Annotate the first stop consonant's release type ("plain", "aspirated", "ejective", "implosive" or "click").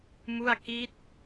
plain